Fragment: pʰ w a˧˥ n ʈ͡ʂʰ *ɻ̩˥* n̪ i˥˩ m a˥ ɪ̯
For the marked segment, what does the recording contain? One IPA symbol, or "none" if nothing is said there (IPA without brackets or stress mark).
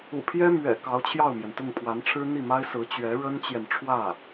ɻ̩˥